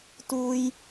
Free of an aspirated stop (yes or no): yes